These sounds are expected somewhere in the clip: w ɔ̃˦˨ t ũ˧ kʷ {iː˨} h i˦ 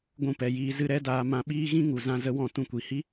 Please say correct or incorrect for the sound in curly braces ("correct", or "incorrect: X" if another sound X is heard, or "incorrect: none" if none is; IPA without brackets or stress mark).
incorrect: i˨